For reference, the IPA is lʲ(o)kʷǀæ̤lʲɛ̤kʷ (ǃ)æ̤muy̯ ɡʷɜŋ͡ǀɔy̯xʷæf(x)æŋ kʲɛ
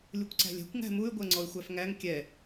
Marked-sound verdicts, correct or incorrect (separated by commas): incorrect, incorrect, incorrect